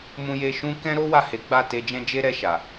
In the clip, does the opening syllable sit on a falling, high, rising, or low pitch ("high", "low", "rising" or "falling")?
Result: low